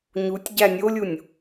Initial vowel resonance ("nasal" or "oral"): oral